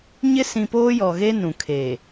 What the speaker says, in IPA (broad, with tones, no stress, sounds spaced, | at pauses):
ɲ ɪ˦ s ĩ˨ p oː˦ j ɔ˨ ɣ e˦ n ũ˨ kʰ eː˨